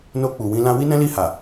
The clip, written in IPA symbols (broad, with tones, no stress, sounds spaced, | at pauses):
n o˧ k͡p u˨ w ĩ˧ l ã˧ w i˦ n ɛ̃˦ l i˦˨ h a˨